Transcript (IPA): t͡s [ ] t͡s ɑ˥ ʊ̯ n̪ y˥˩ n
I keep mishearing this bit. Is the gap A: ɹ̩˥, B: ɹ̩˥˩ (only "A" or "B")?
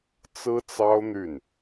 A